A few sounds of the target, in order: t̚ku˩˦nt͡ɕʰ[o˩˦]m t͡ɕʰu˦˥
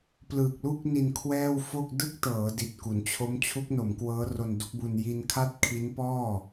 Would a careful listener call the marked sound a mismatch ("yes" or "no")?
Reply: yes